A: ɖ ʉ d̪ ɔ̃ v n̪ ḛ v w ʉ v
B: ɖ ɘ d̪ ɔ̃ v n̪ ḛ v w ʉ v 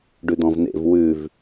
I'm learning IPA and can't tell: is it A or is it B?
A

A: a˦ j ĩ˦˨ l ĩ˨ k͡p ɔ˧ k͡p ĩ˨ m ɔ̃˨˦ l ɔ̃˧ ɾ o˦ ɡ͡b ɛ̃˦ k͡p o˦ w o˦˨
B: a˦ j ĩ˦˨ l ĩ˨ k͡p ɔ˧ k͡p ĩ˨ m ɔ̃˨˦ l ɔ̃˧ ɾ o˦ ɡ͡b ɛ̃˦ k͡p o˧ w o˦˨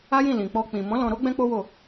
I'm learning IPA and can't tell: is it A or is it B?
A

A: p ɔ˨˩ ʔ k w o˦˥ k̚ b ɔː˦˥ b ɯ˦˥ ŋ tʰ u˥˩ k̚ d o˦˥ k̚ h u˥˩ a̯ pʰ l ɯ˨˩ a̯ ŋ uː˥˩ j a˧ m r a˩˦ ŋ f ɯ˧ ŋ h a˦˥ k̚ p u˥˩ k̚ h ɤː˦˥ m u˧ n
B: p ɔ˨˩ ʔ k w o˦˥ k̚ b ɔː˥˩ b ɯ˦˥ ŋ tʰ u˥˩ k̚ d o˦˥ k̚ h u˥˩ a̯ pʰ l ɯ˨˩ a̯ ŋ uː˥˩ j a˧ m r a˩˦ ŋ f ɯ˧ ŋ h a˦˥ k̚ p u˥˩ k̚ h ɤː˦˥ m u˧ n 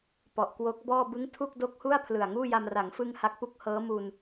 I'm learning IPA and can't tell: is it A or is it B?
B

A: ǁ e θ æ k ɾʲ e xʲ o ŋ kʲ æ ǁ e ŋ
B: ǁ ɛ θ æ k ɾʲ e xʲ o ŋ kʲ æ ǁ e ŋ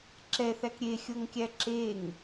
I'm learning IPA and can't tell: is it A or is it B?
B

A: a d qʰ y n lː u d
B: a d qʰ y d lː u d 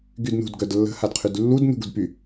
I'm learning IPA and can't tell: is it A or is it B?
B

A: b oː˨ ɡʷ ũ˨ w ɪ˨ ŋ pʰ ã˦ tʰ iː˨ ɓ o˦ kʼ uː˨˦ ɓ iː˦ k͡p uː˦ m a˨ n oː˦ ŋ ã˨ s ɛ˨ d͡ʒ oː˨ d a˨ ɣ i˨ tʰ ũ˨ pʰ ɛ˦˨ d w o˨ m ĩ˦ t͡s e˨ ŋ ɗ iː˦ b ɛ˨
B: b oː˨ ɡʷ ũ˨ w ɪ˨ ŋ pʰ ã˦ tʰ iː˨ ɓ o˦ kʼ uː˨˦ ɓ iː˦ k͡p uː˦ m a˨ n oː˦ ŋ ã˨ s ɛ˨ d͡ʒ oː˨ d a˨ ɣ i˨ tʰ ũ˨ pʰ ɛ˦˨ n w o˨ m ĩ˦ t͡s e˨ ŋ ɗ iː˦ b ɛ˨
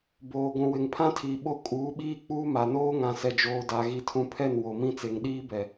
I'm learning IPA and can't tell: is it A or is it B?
B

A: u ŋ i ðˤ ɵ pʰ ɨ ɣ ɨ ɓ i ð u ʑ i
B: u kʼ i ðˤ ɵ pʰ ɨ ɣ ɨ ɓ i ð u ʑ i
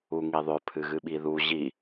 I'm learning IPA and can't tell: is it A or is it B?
A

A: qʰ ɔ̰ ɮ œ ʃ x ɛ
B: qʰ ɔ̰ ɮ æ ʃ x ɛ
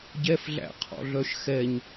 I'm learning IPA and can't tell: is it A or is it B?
A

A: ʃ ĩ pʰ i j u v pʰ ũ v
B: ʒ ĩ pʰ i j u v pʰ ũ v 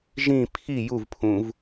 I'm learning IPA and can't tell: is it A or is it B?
B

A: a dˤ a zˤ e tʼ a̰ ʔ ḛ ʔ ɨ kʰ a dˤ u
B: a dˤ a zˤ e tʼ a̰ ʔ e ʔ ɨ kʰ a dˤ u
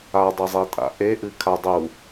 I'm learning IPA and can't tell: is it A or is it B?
B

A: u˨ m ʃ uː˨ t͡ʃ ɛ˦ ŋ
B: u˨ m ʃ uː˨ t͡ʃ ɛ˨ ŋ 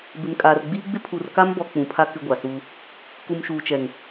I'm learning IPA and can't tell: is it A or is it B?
B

